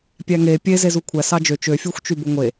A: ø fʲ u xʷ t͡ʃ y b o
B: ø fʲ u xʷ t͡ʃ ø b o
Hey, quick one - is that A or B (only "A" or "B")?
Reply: A